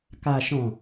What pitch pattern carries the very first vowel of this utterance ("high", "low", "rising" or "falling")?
low